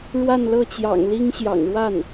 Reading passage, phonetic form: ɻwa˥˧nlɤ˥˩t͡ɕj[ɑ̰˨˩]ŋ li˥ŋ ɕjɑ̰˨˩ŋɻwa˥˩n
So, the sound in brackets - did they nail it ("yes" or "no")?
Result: yes